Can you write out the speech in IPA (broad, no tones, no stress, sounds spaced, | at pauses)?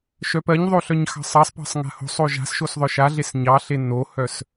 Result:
ʃ œ p ɜ ɲ ðˤ o ɬ œ ɲ x ɑ̤ sˤ ɑ sˤ p ɑ̤ sˤ ŋ a̤ h o̤ sˤ o ʒ a̤ s ʃ o s ðˤ œ ʃ a ɮ e s ɲ ɑ ɬ e n o h œ s